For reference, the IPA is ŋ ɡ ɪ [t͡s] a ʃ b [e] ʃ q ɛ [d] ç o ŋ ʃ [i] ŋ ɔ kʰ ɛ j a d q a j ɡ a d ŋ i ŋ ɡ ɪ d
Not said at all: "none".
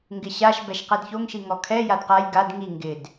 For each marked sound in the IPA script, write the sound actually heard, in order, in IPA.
ɕ, ɛ, d, i

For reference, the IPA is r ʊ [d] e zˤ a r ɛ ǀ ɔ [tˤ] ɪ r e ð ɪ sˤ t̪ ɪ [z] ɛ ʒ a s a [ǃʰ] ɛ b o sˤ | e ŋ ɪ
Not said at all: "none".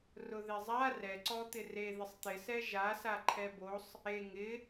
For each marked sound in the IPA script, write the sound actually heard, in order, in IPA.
ð, t̪, s, ǃʰ

